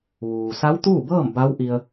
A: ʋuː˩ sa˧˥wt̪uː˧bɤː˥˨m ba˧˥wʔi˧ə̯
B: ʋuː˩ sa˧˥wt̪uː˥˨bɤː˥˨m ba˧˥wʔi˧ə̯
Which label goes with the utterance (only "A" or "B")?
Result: B